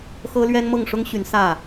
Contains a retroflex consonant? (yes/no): yes